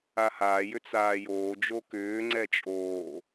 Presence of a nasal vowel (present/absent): absent